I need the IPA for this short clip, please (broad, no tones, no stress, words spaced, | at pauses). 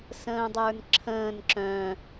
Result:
sə̃ːdˤə˞nǁʰə̃ːn ǁœ̃